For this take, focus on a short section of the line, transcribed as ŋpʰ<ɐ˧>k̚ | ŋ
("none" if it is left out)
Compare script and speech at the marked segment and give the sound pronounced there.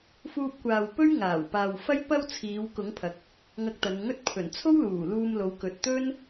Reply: ɐ˨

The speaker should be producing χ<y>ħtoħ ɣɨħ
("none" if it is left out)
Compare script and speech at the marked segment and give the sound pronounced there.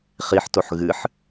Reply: i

